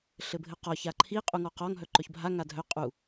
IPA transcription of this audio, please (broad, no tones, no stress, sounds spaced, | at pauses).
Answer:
ɬ ɘ bʱ ɘ q ɒ ç a ǃʰ i qʼ u ŋ ɔ q ɒ ŋ ɦ œ ǃ œ ç bʱ a ŋ a dʱ œ qʼ u